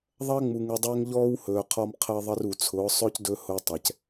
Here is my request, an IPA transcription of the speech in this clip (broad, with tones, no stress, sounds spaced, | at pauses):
ðˤ ɐː˦ ŋ͡m u˨ ŋ u˨ dˤ ɵː˦ ŋ ʎ ɔː˦ w h ɵː˨ qʰ ɔ˦ m qʰ əː˦ ðˤ ə˦ r u˨ t͡sʰ ʊː˨˦ sˤ ɵː˦ c d ɵ˦ h ʊː˦ tˤ ɛ˨ c